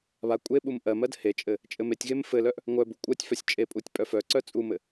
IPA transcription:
βa kʷʼeɓum ʔɜmɜd het͡ʃʼɘ | t͡ʃʼɘmetʲɣem fɘlœʔ | ŋʷœbu kʷʼɜtʲfœsʲ t͡ʃʼepʼutʲ pʼœfœǀœ t͡sʼumɘ

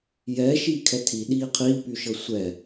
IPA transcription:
jɛ ʃiːkʰɛtʰi ɗiːqʰiːpyʃɤ sʷɛ

